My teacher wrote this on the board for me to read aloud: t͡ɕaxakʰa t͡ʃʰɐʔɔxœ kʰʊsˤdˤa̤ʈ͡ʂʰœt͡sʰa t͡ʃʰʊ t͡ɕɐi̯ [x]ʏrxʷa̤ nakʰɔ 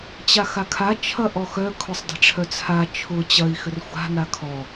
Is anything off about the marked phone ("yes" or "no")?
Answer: no